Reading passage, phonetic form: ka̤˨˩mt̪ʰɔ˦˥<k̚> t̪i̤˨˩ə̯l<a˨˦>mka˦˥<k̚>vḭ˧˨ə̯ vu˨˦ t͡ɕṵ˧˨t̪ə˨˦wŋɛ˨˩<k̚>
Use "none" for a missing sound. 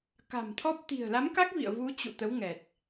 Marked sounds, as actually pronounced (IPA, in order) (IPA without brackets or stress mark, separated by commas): p̚, a˨˦, k̚, t̚